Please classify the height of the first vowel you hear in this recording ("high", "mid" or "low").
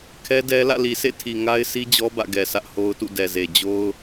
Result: mid